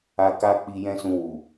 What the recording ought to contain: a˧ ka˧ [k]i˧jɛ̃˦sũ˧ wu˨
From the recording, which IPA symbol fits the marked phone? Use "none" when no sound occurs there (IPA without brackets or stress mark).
k͡p